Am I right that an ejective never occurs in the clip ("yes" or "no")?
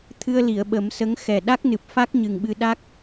yes